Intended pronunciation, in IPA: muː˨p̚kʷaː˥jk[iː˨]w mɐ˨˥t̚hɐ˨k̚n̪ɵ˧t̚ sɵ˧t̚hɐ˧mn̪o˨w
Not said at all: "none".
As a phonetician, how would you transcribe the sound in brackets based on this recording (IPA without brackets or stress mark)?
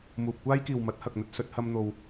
iː˨